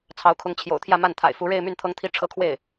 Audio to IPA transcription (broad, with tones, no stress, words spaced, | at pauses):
t͡sʰɑ˧˥ʊ̯kʰʊ˧˥ŋt͡ɕʰjo̰˨˩ʊ̯t̪ʰjä˥˧ ma˥˩nt̪ʰa̰˨˩ɪ̯fu˧˥ ɻe˥˧ɪ̯my˥˩n t̪ʰɤ˥ŋt̪ʰi˥ ʈ͡ʂʰɤ˥kʰwe˥˩ɪ̯